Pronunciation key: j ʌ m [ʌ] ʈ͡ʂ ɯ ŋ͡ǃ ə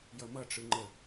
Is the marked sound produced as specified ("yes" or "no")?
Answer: yes